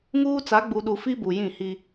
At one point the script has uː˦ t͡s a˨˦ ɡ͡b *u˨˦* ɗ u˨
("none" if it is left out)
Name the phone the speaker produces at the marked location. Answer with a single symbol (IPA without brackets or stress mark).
u˨